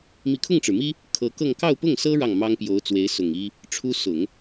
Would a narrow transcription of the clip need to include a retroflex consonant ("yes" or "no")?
yes